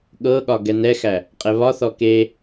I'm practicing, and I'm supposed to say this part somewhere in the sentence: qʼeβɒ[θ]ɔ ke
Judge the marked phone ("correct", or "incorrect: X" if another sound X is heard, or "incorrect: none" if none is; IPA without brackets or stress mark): correct